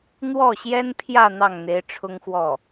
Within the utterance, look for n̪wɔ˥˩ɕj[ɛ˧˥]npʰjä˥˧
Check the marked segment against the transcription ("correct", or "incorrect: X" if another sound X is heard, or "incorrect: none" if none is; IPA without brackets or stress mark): incorrect: ɛ˥